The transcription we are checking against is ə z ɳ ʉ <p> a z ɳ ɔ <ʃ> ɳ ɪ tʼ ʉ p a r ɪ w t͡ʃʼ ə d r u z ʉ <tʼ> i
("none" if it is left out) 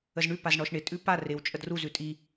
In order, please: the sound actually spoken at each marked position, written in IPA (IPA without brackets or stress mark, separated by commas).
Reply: p, ʃ, tʼ